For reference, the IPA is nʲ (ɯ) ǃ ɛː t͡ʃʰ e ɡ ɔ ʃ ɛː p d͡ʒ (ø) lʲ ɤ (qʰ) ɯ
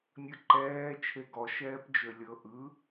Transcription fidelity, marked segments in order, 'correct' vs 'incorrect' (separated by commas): correct, correct, incorrect